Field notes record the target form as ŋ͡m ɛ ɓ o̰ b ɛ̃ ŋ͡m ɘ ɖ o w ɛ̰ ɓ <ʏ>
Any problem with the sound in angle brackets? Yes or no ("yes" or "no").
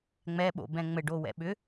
no